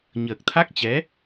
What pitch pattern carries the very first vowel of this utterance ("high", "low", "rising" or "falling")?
low